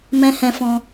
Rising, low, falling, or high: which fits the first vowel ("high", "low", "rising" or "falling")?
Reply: high